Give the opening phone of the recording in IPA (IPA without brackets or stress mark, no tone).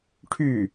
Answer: ʈʰ